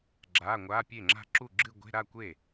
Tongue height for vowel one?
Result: low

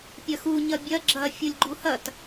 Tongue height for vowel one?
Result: low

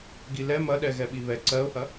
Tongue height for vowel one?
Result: high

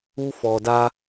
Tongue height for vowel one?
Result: high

